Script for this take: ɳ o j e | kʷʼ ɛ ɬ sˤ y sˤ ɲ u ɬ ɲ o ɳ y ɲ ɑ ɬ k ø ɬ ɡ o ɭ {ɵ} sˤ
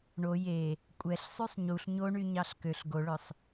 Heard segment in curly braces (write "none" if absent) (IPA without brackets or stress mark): œ